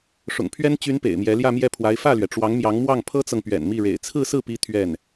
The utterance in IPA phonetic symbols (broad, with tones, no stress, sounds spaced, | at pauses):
ʂ ʊ̰˨˩ ŋ pʰ ɥ ɛ˥ n t͡ɕ y˧˥ n p ḛ˨˩ ɪ̯ m j ɛ˧˥ l j ä˥˧ m j ɛ˥˩ pʰ w a˧˥ ɪ̯ f ä˥˩ l ɥ ɛ˩ ʈ͡ʂ w ɑ˧˥ ŋ m j ɑ˧˥ ŋ m w ɑ˥˩ ŋ pʰ ɤ˥ t͡s ɤ˨ ŋ p ɥ ɛ̰˨˩ n m i˥˩ ɻ ḛ˨˩ ɪ̯ t͡sʰ ɹ̩˥˧ s ɹ̩˥˩ p i˧˥ t̪ʰ ɥ ɛ˥˩ n